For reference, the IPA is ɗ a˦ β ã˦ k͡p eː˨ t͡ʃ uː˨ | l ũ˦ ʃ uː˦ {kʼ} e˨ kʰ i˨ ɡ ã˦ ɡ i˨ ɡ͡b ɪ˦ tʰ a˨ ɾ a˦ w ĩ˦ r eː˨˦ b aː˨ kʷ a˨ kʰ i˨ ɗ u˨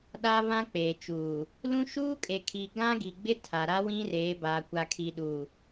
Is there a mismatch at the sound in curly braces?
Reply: no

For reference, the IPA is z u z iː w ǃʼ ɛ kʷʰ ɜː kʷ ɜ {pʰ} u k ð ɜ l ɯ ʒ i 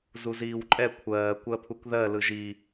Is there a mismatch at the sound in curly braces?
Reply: no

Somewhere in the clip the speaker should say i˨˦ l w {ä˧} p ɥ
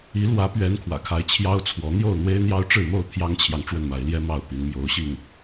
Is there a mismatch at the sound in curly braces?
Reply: yes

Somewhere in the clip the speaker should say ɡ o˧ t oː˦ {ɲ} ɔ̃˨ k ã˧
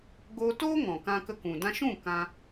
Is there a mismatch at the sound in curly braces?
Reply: yes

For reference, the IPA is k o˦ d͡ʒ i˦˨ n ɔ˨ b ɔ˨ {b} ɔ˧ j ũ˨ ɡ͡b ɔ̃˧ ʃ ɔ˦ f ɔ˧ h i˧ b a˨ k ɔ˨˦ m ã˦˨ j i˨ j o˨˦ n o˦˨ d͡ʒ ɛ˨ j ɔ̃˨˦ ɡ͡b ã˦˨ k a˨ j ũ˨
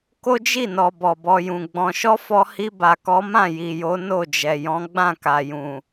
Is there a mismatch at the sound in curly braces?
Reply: no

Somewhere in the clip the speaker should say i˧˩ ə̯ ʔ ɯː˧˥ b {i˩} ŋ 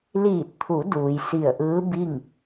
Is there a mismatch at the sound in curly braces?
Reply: yes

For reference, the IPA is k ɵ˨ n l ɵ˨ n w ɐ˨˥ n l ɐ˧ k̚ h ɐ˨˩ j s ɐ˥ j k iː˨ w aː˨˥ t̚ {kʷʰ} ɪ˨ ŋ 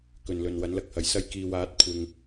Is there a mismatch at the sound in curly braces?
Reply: no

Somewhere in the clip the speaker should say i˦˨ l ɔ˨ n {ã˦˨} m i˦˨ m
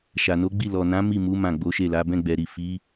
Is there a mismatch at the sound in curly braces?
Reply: yes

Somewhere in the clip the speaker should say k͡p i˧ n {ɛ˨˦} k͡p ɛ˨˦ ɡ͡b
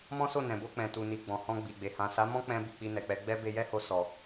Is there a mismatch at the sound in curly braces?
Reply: yes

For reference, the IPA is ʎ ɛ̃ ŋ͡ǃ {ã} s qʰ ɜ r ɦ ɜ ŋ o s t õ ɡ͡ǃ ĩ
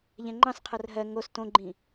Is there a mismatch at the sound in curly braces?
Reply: yes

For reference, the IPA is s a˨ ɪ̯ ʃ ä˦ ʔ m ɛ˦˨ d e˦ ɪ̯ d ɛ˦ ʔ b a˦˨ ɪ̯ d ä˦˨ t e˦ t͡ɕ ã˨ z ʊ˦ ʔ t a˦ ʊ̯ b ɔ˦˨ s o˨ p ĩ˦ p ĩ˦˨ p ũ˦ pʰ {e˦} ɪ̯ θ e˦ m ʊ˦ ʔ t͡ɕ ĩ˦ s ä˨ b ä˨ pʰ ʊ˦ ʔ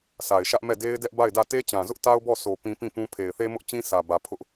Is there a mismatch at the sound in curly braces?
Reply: yes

